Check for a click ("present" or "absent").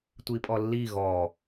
absent